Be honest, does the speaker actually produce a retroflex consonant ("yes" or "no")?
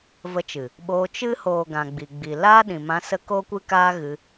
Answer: no